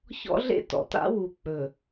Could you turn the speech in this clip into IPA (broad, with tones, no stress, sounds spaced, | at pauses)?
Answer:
ç ɔ̰˦ ɮ ḛ˦ t ɔ̰˨ t a̰˦ w u˨ k͡p ɵ˨